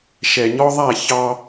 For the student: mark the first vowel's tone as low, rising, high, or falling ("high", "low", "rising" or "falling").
low